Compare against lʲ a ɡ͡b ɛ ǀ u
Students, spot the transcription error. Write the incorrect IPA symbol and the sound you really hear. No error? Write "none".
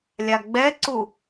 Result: none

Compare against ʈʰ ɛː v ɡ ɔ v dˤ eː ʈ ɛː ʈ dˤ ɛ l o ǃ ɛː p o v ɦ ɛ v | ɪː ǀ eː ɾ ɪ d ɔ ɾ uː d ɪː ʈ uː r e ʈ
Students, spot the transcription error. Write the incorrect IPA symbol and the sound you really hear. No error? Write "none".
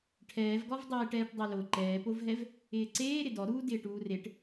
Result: none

